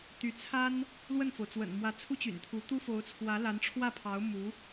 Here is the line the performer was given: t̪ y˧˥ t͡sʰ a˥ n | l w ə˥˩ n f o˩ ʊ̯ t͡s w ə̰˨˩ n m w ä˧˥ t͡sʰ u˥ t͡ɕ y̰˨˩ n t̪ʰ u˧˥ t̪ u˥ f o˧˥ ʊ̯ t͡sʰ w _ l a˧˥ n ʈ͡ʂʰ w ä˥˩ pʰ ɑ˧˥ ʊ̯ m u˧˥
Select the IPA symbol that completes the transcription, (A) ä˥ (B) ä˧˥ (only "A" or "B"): B